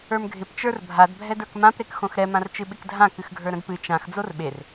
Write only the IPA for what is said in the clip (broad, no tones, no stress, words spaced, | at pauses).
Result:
ə˞mɡʱɪp t͡ʃə˞rbʱad bʱɛdə˞kmãp ɾekxõxɾɛ mãrt͡ʃɨɓɪkdʱã kɨxɡʱə˞ɾə̃dpɨ t͡ʃãx d͡zorɓer